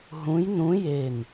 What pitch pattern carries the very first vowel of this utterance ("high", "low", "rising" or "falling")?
rising